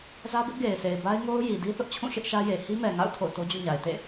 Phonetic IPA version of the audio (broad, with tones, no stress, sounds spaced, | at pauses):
z ä˦ b ɪ˦ ʔ ɡ e˨ ɪ̯ s e˨ ɪ̯ b a˦ ɪ̯ ŋ o˦ ʊ̯ j i˨ d i˦ θ ʊ˦ ʔ t͡ɕʰ ũ˦˨ ʃ ɪ˦ ʔ ʃ ä˦ j e˨ h i˦ m ɛ˨ ŋ a̰˦˨ ʊ̯ tʰ o̰˦˨ ʊ̯ t o˦ d͡ʑ ṵ˦˨ ɲ a˨ ɪ̯ t ḛ˦˨